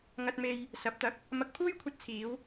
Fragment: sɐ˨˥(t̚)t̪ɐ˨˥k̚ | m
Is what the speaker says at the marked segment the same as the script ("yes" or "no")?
no